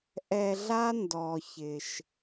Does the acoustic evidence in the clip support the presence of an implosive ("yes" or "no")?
no